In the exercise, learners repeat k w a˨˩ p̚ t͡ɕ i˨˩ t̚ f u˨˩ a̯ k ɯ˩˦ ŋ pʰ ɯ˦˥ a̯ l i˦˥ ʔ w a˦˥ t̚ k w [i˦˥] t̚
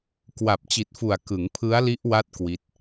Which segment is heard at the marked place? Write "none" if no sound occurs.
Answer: i˦˥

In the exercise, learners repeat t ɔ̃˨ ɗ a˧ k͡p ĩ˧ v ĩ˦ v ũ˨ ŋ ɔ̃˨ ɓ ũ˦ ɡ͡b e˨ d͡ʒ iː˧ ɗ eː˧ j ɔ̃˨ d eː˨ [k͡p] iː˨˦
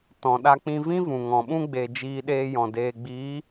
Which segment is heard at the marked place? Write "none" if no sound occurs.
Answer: ɡ͡b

